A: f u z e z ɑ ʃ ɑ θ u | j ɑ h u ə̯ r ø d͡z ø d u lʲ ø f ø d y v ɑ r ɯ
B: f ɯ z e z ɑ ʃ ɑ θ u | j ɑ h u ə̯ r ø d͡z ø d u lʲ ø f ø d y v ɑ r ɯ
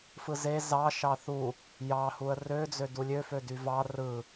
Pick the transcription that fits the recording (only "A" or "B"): B